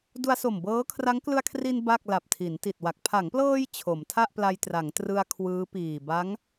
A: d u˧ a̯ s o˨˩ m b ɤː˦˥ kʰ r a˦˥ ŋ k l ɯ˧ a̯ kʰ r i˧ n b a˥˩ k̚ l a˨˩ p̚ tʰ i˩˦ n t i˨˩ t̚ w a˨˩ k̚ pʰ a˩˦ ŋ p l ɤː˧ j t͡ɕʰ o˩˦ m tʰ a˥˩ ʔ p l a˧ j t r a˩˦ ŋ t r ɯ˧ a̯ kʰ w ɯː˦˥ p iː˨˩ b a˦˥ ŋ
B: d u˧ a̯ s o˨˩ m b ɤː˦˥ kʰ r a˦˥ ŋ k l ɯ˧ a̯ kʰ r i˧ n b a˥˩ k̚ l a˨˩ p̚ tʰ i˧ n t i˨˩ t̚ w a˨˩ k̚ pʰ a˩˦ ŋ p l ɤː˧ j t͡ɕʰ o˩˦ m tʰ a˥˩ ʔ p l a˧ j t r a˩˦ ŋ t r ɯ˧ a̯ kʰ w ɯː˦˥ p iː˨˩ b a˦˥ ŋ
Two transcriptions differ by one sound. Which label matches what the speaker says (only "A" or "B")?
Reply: A